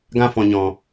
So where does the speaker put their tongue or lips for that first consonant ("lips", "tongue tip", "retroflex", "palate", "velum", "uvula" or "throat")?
velum